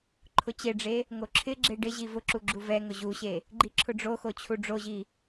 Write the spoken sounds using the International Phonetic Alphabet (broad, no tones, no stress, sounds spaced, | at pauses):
ǃʰ ʊ t͡ɕ e ɖ͡ʐ e | ŋ o ǁʰ ɪ ɡ͡ǁ e ɖ ɪ ʑ i v ʊ ǁ u ɡ͡ǁ u v ɛ ŋ ʊ ʑ u ɕ e | ɡ͡ǃ i ǁʰ ʊ ɖ͡ʐ o x o t͡ɕʰ u ɖ͡ʐ o ʑ i